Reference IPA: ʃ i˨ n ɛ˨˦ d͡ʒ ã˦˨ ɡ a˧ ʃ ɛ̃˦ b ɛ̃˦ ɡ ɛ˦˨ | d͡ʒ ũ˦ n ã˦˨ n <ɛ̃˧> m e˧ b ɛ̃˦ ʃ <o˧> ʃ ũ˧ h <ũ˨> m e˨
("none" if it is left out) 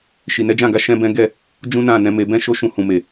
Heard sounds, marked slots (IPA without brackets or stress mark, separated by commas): ɛ̃˨˦, o˦, ũ˨